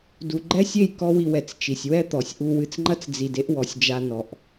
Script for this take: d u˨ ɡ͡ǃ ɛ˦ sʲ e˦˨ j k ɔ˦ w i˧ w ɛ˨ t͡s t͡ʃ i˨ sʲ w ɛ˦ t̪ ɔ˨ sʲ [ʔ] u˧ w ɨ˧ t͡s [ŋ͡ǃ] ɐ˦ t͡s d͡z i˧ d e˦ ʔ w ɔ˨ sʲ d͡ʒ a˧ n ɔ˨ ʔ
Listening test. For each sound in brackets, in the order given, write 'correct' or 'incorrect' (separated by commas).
correct, correct